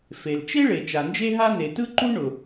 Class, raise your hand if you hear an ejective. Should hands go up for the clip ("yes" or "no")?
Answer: no